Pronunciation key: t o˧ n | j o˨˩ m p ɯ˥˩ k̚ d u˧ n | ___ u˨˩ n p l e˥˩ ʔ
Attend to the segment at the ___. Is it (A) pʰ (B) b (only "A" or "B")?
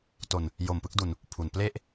A